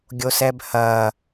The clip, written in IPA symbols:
ɡʲ o s ɛ b h ɐ

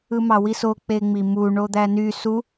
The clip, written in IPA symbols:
ɯ m ɑ w i s o k͡p e ŋ͡m i m u ɳ o d̪ æ n y s u

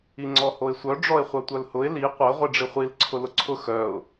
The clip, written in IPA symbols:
i ŋ͡ǀ ɔ h o ɪ̯ sʷ œ ɖ͡ʐ ɔ ɪ̯ χʷ œ tʷ œ l h ʊ ɪ̯ l i qʷ œ ʁʷ i ɖ͡ʐ i χʷ i l ǀʰ ʊ l ʊ ǀʰ ʊ x œ ʊ̯

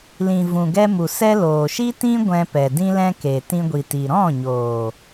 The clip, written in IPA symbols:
l ĩ˨ v ũ˨ ɡ ɛ˧ m u˨ s ɛ˧ l oː˨ ʃ i˦ t ĩ˦ ɡʷ ɛ̃˧ p ɛ˨ d ĩ˦ l ɛ̃˦ k e˨ t ĩ˧ ɡʷ i˨ t i˨ ɾ ɔ̃˦˨ ɲ oː˨

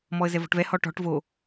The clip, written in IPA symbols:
m ɔ ə̯ z ɛ v ɔ̤ ʈ v ɛ h ɔ ʈ ɔ̤ ʈ v o

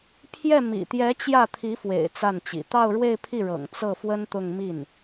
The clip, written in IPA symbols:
pʰ j ɛ˥˩ m ḭ˨˩ t̪ j ɛ˧˥ t͡ɕ j ä˥˩ t̪ʰ i˧˥ f w ḛ˨˩ ɪ̯ t͡s a˥˩ n t͡ɕ ḭ˨˩ t̪ ɑ˥˧ ʊ̯ ɻ w e˥˧ ɪ̯ pʰ i˥˩ ɻ ɤ̰˨˩ ŋ t͡s ɤ˥˩ f w ə˥ n t̪ ʊ˥˧ ŋ m i˥˩ n

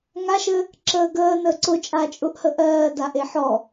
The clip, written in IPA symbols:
ŋ a ʃ ɘ | ǁ əː ɡ əː n əː ǀ ʊ t͡ʃʼ a t͡ʃʼ ʊ ʔ h ə ʔ ɜː d a ʔ e ħ ɔ

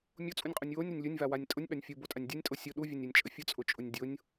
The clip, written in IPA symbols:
mʲ o t͡sʼ u nʲ qʼ u nʲ w o nʲ ɾ ə nʲ lʲ ʊ nʲ v a w a nʲ tʼ ʊ nʲ ɓ a nʲ fʲ u b o tʼ a nʲ dʲ o nʲ tʼ o sʲ ʊ ɗ u vʲ o nʲ a nʲ t͡ʃʼ ə fʲ ʊ t͡sʼ ʊ t͡ʃʼ ʊ nʲ dʲ ʊ nʲ

